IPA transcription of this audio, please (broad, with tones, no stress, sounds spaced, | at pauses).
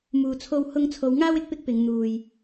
m uː˨ t͡sʰ o˧ w h ʊ˧ ŋ t͡sʰ o˨˧ w ŋ aː˥ w ɪ˧ k̚ p ɪ˥ k̚ p ɪ˨˧ ŋ n̪ uː˨ j